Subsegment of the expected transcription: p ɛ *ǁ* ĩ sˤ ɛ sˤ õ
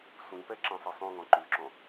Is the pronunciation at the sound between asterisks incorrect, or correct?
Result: correct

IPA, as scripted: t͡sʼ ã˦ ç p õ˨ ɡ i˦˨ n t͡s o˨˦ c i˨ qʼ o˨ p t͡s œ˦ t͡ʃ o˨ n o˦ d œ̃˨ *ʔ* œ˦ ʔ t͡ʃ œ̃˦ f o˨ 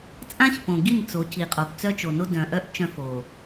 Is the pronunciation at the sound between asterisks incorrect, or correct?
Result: correct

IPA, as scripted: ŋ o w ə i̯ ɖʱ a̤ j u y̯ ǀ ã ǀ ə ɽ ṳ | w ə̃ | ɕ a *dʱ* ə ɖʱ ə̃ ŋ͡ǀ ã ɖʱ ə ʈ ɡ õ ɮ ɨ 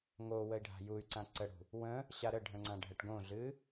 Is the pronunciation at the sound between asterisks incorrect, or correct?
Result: incorrect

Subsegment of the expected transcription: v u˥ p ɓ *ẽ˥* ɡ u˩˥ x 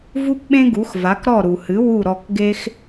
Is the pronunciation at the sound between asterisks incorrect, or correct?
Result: correct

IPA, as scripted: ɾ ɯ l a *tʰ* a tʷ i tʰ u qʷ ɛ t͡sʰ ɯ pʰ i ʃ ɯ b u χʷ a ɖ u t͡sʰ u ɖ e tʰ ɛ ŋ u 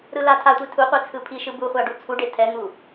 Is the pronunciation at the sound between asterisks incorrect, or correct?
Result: correct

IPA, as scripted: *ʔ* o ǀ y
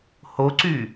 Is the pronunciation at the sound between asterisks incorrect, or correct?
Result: incorrect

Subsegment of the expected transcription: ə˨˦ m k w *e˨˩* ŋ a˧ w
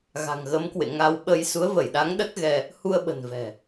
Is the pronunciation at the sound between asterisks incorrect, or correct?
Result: incorrect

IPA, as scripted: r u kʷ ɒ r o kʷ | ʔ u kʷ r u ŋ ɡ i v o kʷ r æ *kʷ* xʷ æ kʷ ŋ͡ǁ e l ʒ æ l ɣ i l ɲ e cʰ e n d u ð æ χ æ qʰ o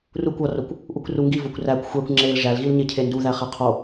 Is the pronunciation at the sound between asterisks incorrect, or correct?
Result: correct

